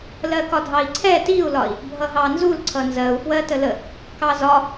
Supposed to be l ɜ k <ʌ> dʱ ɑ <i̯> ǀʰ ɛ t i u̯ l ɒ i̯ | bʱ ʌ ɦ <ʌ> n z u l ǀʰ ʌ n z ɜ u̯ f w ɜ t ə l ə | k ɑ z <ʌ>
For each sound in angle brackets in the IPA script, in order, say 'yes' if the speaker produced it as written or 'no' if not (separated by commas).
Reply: no, yes, no, no